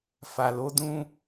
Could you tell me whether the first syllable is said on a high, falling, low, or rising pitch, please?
low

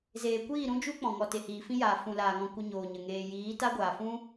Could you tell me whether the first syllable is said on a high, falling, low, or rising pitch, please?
low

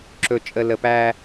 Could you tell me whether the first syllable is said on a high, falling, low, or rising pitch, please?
low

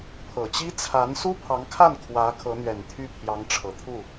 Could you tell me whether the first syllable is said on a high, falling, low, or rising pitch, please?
low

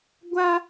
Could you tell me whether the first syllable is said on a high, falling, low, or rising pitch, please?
high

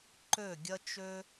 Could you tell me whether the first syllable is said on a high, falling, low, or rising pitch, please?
falling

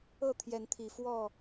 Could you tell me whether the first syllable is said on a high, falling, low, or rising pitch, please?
falling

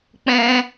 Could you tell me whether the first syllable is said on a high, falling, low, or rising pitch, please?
high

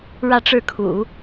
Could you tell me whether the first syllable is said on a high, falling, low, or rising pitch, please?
falling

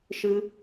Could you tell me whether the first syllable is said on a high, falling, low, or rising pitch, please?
high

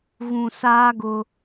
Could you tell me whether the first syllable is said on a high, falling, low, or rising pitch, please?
low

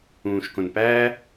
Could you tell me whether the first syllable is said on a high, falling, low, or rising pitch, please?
low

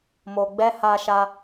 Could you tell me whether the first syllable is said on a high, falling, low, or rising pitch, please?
low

